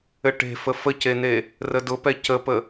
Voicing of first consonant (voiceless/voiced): voiceless